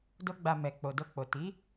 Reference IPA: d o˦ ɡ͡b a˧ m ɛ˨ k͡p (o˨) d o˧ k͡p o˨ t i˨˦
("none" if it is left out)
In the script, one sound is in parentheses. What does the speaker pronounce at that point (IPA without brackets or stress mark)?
o˨